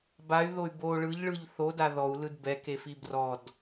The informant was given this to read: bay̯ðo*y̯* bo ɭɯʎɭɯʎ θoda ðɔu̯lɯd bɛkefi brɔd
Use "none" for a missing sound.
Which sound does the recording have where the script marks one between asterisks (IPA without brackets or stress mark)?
y̯